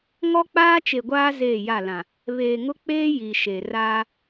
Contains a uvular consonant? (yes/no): no